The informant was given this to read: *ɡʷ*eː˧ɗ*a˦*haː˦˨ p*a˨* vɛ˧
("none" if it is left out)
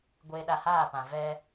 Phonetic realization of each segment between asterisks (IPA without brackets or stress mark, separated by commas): ɡʷ, a˧, ã˨